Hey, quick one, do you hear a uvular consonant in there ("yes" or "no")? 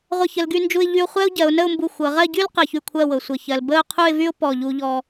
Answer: yes